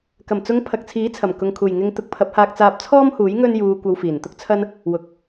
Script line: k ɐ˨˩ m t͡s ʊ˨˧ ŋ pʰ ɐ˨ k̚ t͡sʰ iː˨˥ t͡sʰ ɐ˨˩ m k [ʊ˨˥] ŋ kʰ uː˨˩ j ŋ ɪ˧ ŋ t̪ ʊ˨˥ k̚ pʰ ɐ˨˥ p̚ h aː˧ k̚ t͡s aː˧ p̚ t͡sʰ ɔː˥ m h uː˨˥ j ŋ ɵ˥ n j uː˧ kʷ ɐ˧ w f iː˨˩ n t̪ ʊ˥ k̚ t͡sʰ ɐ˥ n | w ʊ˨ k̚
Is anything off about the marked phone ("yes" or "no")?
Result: yes